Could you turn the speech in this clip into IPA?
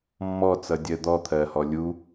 mːɔt͡sʌdʲɜ d̪ɔt̪ʰɜhɔ lʲu

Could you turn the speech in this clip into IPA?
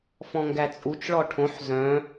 fɔ̃ŋɡæt͡sʼut͡ʃ ɭɔʈʰõħ zœ̃

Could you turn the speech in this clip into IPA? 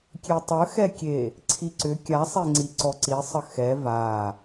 kʲetˤəxɛkʲe | ǀʰiǀʏ kʲasˤeŋ͡ǀi ǀɔǀi sˤəxɛ va

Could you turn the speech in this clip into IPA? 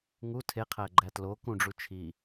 ŋu tʰe qʰæɡ͡ǃætlo kũɖ͡ʐu t͡ʃʰi

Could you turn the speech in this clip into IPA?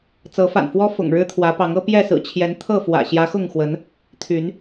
t͡sɤ˨˦fa̰˨˩nfwɔ˦ fʊ̰˨˩ŋ ɻɻ̩˦t̪ʰwä˨˦pɑ˨˦ŋ ɤ˦pjɛ˥˨sɹ̩˨˩ t͡ɕʰjɛ˨˦n t̪ʰɤ˥˨fwä̰˨˩ ɕjä˨˦xʊ˥˨ŋxwə˨˦n | t̪ʰy˨˦n

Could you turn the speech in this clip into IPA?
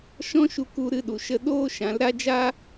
ʃɔ̃˦ʃu˧ ku˦ɾɨ˦ɗu˨ ʃə˧ ɗoː˦ʃã˨˦lɾa˦ d͡ʒa˦

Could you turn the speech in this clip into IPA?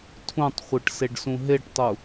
tʰũtˤχʷɯʈ seɖsũɦeʈtˤu

